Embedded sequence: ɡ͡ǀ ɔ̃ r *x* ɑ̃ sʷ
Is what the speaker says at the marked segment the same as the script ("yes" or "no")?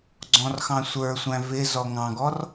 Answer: yes